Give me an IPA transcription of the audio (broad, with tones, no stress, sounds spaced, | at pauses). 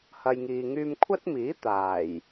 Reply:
h ɐ˨ j ŋ iː˨ ŋ yː˧ m kʷʰ ɐ˥ t̚ m iː˨˥ t̪ aː˨˩ j